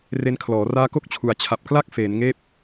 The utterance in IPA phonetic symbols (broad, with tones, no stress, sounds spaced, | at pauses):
r e˦˥ n kʰ l ɔː˩˦ r aː˦˥ k o˥˩ k̚ t͡ɕʰ u˨˩ a̯ t͡ɕʰ a˨˩ p̚ k l a˦˥ k̚ f eː˩˦ n ŋ eː˥˩ p̚